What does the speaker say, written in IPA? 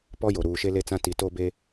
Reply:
p ɔ˦ j o˨ ɾ uː˨ ʃ e˦ l e˦ t͡s ã˦ t i˨ t o˦ b e˦

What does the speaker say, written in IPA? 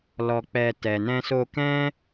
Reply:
l ɔ˧ k͡p ɛ˧ t ɛ˨ n ɛ̃˧ s o˧ k ɛ̃˦

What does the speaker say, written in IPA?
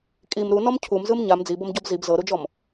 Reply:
kʼ i m ɾ u n ɔ m cʰ u m z ɯ m ɲ a m d͡z i b ɤ m ɟ ɔ b z i b z ɤ ɾ u d͡ʒ ɔ m

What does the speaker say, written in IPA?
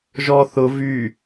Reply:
ʒ ɔ θ ʊ v y

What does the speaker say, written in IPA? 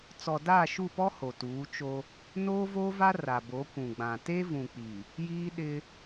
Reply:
t͡s ɔ˨ d aː˦˨ ʃ u˦˨ p ɔ˦ h o˨ t uː˨˦ t͡ʃ o˦ | n oː˦ v o˦ v a˦ r a˨ b o˨˦ kʷ ũ˨ ɡ͡b ã˨ t e˦ v ũ˨ k͡p i˨ | j iː˦ ɗ ɪ˦

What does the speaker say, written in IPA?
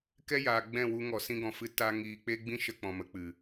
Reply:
k ɛ˦ j aː˨ ɡ͡b ɛ̃˦˨ w u˧ ŋ ɔ˨ s ĩ˧ ɡ ɔ̃˨ f ɨ˧ t a˧ ŋ iː˨ k͡p e˦ ɡ͡b ĩ˦ ʃ ə˧ k͡p ɔ̃˨ m ə˨ k͡p ɨ˨

